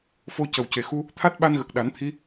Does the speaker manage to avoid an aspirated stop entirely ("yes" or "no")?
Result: no